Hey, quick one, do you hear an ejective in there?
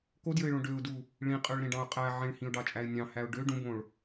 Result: yes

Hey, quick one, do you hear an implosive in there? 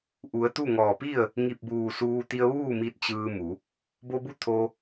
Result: no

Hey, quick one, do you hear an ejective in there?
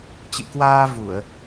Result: no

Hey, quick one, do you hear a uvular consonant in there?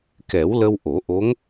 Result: no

